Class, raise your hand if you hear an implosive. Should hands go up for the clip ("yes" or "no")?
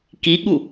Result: yes